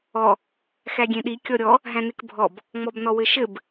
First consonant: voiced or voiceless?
voiceless